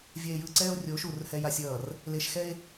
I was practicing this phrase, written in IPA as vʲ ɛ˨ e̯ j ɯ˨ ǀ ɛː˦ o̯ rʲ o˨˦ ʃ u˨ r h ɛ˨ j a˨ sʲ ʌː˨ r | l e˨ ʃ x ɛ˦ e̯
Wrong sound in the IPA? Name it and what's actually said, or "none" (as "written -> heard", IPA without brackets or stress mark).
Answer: none